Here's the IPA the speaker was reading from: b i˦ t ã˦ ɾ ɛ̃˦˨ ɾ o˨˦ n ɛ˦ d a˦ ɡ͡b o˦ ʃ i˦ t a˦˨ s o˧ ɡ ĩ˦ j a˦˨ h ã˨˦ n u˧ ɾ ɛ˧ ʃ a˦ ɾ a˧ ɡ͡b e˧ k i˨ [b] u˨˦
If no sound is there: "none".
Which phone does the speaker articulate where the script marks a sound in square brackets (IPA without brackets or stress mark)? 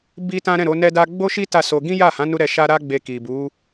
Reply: b